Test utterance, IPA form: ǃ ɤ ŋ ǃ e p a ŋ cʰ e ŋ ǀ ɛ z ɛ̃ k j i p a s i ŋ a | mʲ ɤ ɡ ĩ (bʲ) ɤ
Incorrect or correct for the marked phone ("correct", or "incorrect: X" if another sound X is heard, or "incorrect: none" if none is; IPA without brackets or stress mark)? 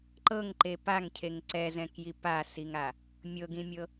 incorrect: mʲ